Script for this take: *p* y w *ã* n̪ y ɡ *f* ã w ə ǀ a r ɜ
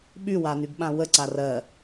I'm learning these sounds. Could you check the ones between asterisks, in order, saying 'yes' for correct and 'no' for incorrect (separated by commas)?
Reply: no, no, no